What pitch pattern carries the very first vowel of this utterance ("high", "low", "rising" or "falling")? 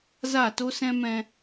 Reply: falling